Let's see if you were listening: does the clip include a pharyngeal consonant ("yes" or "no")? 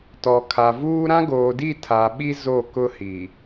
no